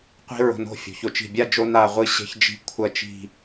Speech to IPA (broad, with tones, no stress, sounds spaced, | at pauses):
qʷ i̤˥ ɹ o̤˧ n o̤˥˧ fʲ o̤˩˧ ç o˩˧ t͡ʃ i̤˧˩ bʲ a˥˧ d͡ʒ o˧ n a˥˧ ʁʷ ɨ˥˧ ɕ e̤˥ ç d͡ʒ i̤˥˧ kʷʰ ɐ˥˧ t͡ʃ i̤˥˧